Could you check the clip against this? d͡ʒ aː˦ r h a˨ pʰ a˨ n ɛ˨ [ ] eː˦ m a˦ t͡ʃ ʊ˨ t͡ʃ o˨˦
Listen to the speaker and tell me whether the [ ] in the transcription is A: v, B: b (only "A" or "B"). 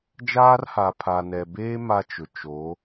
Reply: B